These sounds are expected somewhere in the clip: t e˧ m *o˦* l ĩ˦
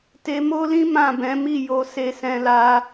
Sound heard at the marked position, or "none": o˦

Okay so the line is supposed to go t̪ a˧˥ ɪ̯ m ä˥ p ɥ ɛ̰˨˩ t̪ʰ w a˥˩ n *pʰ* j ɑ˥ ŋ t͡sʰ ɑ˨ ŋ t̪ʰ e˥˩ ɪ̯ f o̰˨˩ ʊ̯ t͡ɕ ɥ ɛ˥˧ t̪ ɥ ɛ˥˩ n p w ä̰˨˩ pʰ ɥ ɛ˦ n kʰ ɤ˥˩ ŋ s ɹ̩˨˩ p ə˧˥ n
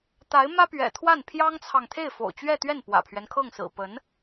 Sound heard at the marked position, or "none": pʰ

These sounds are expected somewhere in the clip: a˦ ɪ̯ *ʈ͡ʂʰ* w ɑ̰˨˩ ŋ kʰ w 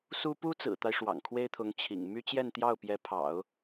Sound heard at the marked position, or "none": ʂ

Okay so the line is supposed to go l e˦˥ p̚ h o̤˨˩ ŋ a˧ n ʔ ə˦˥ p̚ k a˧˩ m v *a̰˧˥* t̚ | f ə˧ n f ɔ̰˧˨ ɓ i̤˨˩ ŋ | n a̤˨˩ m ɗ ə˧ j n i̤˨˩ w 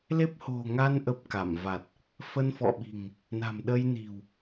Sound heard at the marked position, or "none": a˨˩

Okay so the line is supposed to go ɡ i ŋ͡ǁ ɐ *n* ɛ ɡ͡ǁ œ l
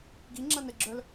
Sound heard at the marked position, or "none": n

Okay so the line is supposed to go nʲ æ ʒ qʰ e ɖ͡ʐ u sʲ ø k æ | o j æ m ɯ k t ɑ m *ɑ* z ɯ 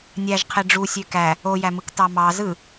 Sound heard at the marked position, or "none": ɑ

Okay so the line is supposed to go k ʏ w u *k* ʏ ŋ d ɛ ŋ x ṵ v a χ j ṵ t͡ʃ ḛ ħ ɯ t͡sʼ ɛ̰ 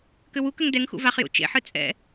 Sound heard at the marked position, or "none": k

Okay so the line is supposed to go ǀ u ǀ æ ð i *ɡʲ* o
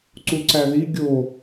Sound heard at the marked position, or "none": ɡʲ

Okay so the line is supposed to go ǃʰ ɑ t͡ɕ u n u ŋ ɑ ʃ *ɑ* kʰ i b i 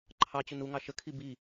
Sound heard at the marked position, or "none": ə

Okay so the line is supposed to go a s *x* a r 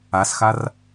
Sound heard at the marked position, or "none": x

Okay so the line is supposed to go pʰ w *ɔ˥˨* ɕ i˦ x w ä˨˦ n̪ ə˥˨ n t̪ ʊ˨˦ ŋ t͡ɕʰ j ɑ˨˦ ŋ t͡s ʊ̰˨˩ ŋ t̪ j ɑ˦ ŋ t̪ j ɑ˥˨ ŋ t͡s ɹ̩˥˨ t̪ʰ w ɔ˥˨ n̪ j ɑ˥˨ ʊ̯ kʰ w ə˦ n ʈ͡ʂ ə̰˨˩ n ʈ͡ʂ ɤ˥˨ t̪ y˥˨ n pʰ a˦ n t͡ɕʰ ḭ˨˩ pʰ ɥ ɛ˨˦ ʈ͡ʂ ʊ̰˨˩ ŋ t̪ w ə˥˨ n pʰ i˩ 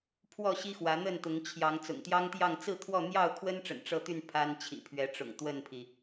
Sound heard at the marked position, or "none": ɔ˥˨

